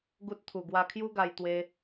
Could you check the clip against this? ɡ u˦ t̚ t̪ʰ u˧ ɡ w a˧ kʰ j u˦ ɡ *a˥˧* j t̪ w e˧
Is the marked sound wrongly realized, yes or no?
yes